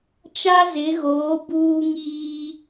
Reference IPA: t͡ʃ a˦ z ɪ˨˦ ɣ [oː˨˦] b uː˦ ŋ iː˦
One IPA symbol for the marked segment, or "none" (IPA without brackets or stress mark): oː˨˦